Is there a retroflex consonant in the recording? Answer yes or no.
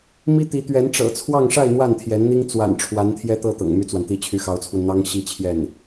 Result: yes